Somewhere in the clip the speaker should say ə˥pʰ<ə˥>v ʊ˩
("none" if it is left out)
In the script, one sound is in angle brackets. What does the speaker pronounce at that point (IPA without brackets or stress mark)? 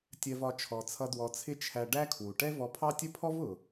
ɔ˥